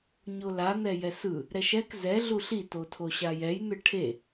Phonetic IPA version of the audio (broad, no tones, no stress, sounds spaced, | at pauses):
ɲ o l a n̪ ɛ j ɛ s ɯ | ɾ ɛ ʃ ɛ k z ɛ ɮ u ɬ i t o tʰ o ɕ a j ɛ j n̪ ɯ ʈʰ e